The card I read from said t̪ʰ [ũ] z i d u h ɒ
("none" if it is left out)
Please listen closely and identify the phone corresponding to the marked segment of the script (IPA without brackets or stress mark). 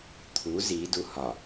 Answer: u